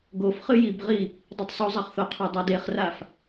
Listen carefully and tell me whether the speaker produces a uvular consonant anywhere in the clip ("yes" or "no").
yes